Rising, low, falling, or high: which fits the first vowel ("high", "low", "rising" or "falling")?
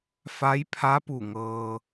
rising